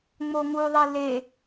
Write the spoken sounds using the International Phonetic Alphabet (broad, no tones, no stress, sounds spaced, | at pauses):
ŋ͡m o ŋ u ðˤ i l e